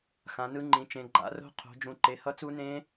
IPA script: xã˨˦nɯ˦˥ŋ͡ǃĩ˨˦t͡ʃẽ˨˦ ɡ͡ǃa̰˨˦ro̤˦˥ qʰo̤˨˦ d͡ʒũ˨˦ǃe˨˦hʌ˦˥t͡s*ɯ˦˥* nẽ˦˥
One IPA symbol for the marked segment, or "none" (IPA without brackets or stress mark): u˦˥